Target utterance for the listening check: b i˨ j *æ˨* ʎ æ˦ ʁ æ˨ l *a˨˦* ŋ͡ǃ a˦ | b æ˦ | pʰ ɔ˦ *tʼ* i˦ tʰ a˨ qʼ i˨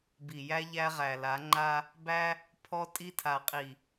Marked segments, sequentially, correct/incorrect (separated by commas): incorrect, correct, correct